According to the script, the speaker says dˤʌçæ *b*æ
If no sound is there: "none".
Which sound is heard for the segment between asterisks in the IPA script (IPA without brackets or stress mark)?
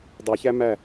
m